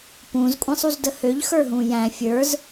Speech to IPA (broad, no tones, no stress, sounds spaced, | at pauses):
p ũ z kʷʼ ã sˤ u z d ə h ø ʎ x ə˞ ɦ ũ j æ̃ fʲ ə˞ z